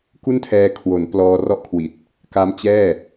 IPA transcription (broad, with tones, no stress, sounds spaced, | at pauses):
k u˥˩ n tʰ ɛː˧ kʰ w o˩˦ n p l ɔː˧ r ɔ˥˩ ʔ kʰ w i˨˩ t̚ | k a˦˥ m t͡ɕ ɛː˥˩